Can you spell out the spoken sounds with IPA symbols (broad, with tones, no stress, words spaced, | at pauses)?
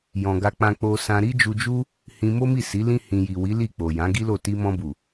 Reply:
jɔ̃˨ ɡa˧k͡pã˧ k͡po˧sã˧ ɾi˦d͡ʒu˧d͡ʒu˦ | hĩ˧mo˦mi˦˨ si˨˦ lĩ˦ hĩ˧ ji˨wi˨˦ li˦˨k͡po˨ jã˨˦ɡi˦lo˦˨ ti˧mɔ̃˧bu˨